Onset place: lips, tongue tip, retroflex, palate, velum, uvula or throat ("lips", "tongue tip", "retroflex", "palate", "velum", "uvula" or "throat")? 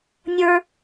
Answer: tongue tip